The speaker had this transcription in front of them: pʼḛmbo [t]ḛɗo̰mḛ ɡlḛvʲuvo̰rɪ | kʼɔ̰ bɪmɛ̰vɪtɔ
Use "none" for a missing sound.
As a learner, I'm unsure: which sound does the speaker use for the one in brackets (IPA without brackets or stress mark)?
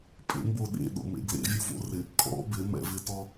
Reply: ɗ